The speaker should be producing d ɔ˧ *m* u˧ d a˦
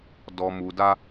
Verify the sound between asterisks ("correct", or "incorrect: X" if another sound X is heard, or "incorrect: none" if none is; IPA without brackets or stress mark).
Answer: correct